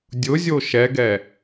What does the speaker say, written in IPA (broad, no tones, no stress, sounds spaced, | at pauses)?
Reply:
dʲ ʊ zʲ o ʃ ɛ ɡ ɛ